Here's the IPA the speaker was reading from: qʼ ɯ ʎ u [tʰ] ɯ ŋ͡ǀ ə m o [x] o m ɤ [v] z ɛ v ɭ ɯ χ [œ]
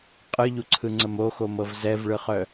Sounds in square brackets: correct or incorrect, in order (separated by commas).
incorrect, correct, correct, correct